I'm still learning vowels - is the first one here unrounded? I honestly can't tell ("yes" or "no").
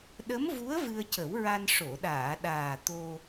yes